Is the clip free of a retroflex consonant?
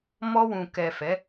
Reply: yes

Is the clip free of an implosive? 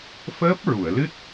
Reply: yes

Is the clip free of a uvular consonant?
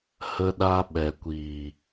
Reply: yes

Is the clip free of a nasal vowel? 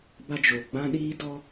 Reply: no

